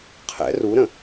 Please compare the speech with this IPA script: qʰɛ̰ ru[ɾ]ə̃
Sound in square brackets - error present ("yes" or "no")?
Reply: no